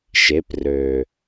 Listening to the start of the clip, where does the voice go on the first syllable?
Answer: rising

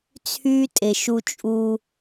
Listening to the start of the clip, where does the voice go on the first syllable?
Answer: high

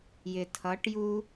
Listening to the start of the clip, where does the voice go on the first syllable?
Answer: low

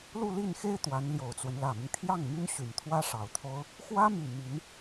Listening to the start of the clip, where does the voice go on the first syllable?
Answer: falling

